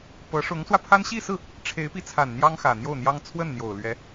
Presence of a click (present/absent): absent